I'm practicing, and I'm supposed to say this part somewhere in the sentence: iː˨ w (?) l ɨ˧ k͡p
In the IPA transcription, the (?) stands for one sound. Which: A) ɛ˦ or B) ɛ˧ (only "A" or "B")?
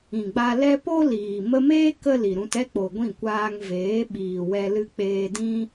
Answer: B